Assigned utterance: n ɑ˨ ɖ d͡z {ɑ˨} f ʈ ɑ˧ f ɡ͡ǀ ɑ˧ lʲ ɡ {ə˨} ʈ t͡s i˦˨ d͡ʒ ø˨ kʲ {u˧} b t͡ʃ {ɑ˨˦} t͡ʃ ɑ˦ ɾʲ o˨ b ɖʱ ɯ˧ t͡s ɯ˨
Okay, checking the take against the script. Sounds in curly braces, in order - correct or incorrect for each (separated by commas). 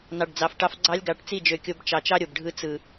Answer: correct, incorrect, incorrect, incorrect